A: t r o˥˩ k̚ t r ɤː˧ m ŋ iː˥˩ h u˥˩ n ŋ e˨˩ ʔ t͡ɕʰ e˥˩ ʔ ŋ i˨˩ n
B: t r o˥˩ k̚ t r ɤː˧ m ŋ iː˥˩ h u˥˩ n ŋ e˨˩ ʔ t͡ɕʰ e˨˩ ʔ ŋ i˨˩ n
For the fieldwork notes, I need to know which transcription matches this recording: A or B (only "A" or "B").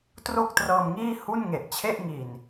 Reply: A